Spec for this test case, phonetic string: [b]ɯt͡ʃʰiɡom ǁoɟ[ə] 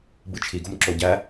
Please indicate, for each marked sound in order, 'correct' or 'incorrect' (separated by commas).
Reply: correct, incorrect